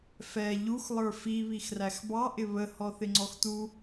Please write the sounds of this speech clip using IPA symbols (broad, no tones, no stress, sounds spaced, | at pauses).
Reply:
f ɛ ʎ u x lˠ ə˞ f i β i x r æ x b ɑ ʔ ɪ β ə h ɔ θ ɪ ŋ͡ǀ ɔ x t u